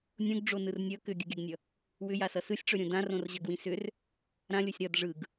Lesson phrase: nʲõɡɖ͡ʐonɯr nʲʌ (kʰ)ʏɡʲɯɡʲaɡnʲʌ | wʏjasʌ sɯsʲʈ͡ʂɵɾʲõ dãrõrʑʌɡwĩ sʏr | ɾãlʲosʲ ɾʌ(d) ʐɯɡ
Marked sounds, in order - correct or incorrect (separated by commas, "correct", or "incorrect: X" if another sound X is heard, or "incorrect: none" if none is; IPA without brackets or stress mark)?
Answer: incorrect: k, correct